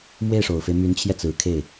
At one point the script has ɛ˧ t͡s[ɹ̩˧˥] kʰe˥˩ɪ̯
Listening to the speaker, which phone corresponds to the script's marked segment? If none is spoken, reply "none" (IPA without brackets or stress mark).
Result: ɹ̩˧˥